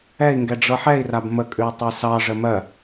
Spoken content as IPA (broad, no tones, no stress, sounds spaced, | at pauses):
ɛ i̯ ŋ ɡ ɛ ɖ͡ʐ ɤ ħ ɛ i̯ r a b m ə kʼ ʉ i̯ tˤ e s ɑ ʐ ə m ɜ